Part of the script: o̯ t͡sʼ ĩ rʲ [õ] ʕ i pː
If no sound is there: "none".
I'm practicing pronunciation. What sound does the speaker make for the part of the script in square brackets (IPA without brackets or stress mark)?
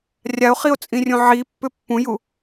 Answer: õ